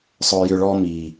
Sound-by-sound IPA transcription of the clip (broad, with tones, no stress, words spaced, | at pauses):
sˤœ˧jʏ˧ɭɔ˦ miː˨